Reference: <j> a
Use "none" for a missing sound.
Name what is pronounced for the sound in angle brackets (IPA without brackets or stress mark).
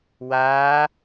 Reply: w